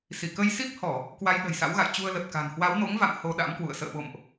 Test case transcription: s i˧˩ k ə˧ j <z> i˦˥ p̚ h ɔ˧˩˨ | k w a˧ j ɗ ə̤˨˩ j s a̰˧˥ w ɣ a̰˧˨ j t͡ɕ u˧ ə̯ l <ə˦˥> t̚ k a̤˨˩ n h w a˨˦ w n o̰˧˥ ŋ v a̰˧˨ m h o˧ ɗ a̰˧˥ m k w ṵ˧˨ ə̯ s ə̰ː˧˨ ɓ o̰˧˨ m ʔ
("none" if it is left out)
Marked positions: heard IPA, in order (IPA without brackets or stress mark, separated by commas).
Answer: s, ə˨˩